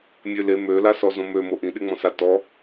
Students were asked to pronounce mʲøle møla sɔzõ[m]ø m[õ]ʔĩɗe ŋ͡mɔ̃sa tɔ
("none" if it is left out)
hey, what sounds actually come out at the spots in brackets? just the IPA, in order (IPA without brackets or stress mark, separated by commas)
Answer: m, o